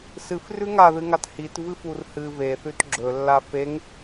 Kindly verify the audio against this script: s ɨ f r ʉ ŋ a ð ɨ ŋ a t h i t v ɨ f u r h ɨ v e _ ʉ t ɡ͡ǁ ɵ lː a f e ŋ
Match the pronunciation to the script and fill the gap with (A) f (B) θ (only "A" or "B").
B